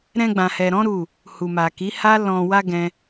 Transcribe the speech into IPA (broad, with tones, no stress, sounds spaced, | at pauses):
ɾ ɛ̃˧ ɡ͡b ã˨ h ɛ˨ ɾ ɔ̃˨˦ ɾ u˦˨ | h u˨ m a˨ k i˨˦ h a˦ l ɔ̃˧ w a˦ ɡ ɛ̃˦